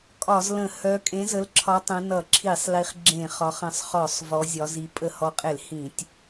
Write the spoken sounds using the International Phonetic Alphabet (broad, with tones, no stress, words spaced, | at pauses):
kʼɒ˧˩˧zlə̃˧˩˧ hœ˨˦ kʼẽ˨˦zə˨˦lǁʰɒ˨˦ tˤə̃˨˦nʌ˧˩˧ǁʰi˧˩˧sˤ li˨˦χɡ͡ǁẽ˧˩˧ χɒ˨˦χə̃˧˩˧sˤχɔ˧˩˧sˤ vɔ˨˦zʲɒ˨˦zi˨˦ pʼə˧˩˧hɔ˨˦qʼe˧˩˧l hĩ˧˩˧tʲ